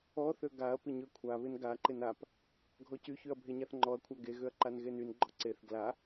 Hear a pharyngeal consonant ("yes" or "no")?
no